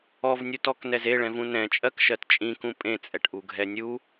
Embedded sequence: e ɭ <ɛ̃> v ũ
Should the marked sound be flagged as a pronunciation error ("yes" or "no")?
no